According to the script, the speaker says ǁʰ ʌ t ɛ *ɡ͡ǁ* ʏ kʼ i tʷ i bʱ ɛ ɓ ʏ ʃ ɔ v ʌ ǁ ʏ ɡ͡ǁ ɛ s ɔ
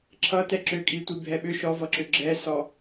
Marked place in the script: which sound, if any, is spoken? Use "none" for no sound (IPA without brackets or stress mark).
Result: ǁ